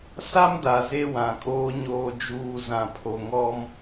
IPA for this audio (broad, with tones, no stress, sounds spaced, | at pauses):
s a˦ m d a˨ z e˦ w ã˨ kʼ oː˦ ɲ oː˨ d͡ʒ uː˨ z ã˨ pʰ o˨ ŋ ɔ˦ m